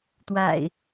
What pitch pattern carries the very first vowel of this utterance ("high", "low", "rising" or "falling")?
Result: low